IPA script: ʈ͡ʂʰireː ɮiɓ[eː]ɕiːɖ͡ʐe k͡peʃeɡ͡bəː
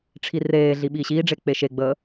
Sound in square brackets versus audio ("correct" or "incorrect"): incorrect